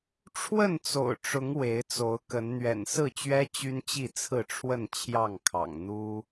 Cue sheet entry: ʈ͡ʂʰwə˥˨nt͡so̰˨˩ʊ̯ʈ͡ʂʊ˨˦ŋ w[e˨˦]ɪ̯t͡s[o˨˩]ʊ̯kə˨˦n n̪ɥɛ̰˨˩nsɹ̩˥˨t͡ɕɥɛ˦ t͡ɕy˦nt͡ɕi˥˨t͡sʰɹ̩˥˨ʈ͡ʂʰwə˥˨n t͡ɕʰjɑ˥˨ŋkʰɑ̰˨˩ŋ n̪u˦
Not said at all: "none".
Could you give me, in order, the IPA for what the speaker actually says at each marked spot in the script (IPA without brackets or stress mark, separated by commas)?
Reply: e˨˦, o˨˦